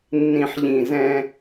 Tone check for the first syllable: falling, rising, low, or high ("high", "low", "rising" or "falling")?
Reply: low